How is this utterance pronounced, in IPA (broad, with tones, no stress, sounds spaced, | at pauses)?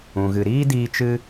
ũ˨ ɣ ɨ˨ ɾ iː˦ d iː˧ t͡ʃ ɨ˧